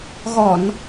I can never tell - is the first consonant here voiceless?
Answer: no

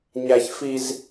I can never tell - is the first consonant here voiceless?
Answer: no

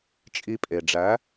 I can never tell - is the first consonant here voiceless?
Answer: yes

